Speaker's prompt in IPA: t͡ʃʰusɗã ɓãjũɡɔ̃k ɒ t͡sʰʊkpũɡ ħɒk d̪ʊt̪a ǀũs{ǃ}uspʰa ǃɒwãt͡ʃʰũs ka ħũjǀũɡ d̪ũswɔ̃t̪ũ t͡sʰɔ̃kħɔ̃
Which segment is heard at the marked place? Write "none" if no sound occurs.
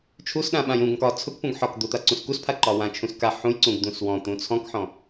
k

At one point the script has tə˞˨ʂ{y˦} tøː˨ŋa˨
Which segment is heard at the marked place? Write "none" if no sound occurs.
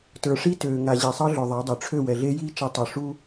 i˦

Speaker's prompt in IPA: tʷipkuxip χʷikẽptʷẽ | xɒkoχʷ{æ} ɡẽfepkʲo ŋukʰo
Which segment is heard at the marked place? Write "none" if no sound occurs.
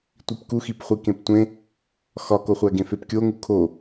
æ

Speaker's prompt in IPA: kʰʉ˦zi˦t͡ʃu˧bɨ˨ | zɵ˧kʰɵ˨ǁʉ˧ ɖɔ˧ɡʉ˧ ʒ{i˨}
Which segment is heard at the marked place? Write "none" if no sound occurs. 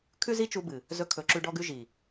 i˨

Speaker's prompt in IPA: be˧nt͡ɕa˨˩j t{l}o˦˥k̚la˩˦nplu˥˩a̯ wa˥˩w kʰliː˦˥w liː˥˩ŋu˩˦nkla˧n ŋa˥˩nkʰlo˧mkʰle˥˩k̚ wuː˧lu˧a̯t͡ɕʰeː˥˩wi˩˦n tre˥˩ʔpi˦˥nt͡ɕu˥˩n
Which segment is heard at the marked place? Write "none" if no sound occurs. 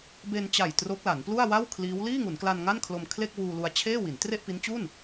r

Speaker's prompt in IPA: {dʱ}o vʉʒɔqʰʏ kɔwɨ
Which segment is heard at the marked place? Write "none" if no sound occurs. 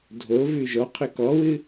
dʱ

